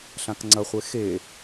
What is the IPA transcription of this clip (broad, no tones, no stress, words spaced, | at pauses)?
ɬãkŋ͡ǀɐχʷe xe